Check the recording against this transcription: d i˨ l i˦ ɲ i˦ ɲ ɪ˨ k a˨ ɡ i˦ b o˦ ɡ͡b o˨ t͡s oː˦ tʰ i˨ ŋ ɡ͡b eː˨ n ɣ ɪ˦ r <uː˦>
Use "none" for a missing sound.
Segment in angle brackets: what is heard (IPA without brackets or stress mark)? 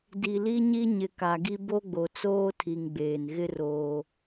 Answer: oː˦